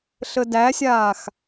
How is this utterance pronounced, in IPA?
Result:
ɬ ə d æ sʲ aː x

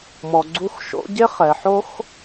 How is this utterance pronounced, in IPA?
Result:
m ɔ˩ ɡ͡ǀ u˨˥ x ʃ o̰˨˥ ɟ e˥ χ ɛ˩ ħ o˥ x

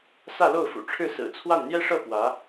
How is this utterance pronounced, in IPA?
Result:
s ä˥˧ l o˥˩ ʊ̯ f ṵ˨˩ ʈ͡ʂʰ ɻ̩˥˩ s ɹ̩˨˩ t͡sʰ w a˥˩ n n̪ j ɛ˥ ʂ ɤ˥˩ p w ä˧˥

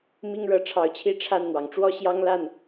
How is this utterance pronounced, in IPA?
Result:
m i˦ ŋ ɻ ɤ˨˦ ʈ͡ʂʰ ɑ˨˦ ʊ̯ t͡ɕʰ i˥˨ ʈ͡ʂʰ a˥˨ n n̪ w ɑ˩ ŋ ʈ͡ʂ w ɔ˦ ɕ j ɑ˦ ŋ l a˥˨ n

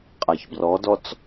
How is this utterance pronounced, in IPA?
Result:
qʼ a ç b r ɔ d ɔ t͡s

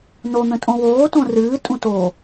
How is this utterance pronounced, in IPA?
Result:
n o n̪ ə̃ tʼ õ w oː t õ r ɨː tʼ ũ t o

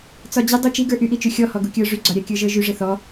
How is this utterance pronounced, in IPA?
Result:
t͡s ɒ d͡ʑ ɘ dˤ u t͡ʃ i ɡ ə˞ ʔ y ʔ i t͡ʃ y xʲ ɔ h ɔ ɡ u kʲ ə˞ ʐ y ɡ͡ǀ ɒ ɾʲ a kʲ ə˞ ʒ ə˞ ʒ y ʐ ɘ θ ɔ

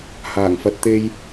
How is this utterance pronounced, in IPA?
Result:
h aː˨˩ ŋ f ɐ˧ t̚ t̪ e˥ j

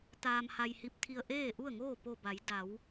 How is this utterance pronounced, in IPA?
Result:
t̪ aː˧ m h a˧ j h i˧ p̚ t̪ʰ i˧ ə̯ ʔ eː˥˨ ʔ u˥˨ ə̯ ŋ oː˥˨ p o˧˩ b a˩˧ j d a˩˧ w

